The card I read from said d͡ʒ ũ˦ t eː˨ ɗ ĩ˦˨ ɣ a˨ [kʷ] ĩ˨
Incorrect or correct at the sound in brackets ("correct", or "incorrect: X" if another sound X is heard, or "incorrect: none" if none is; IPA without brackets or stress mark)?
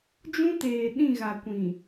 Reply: correct